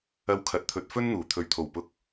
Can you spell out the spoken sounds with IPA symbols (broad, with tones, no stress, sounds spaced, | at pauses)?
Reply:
ɐ˧ w kʰ ɐ˨ t̚ t̪ʰ ɵ˨ t̚ f ɵ˥ n n̪ uː˨˩ t̪ʰ ɵ˨ ɥ t̪ʰ o˨˩ w p ʊ˧ k̚